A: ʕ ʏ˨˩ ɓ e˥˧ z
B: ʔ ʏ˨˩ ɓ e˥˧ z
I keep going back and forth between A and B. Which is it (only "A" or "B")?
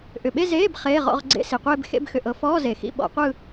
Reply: B